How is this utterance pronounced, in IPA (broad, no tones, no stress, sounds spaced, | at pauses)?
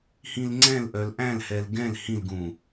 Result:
h ĩ l ŋ͡ǀ ɛ̃ l ʔ œ l ʔ æ̃ l h ɛ l ɡ ɛ̃ l h ĩ l ɡ ũ